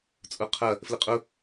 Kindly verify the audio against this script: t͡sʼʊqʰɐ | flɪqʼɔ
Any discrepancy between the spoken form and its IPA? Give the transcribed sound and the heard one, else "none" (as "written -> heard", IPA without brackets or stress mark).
ɔ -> ʊ